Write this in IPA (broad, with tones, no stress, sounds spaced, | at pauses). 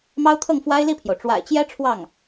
m ɑ˥ ʊ̯ t̪ʰ ɤ˥˩ ŋ f w a˥ ɪ̯ l i˥˩ pʰ j o˩ ʊ̯ ʈ͡ʂ w a̰˨˩ ɪ̯ t͡ɕ j ɛ˥ ʈ͡ʂʰ w ɑ˥˩ ŋ